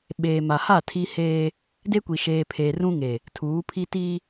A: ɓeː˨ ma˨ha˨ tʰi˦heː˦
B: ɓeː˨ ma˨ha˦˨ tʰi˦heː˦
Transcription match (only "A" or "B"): B